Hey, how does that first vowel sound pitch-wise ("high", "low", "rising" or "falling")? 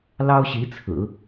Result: high